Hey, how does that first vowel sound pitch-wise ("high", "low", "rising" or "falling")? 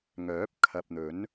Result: rising